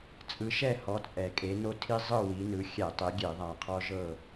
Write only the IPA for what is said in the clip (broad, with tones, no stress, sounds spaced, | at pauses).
t͡sʼ ɯ˨˦ ʃ ɛ˥˨ h ɔ˨˦ t͡sʼ ɛ˨˩ kʼ e˨˦ n o˦ tʰ i˦ zˤ ɯ˥˨ w i˨˦ n ɯ˨˦ xʲ ɛ˧˩˧ tˤ e˨˦ ɡʲ e˧˩˧ ðˤ a˨˩ qʰ ɔ˦ ʒ ɤ˥˨